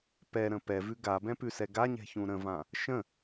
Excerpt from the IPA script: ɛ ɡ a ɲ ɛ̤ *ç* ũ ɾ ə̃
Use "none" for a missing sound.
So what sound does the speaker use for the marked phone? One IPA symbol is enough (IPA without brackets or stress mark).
ç